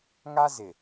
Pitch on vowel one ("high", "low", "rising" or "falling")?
high